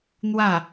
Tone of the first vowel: falling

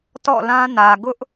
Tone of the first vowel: falling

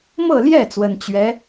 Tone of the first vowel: falling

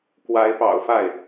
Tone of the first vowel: rising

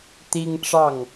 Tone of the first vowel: high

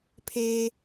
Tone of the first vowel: high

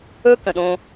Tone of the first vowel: high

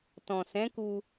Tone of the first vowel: low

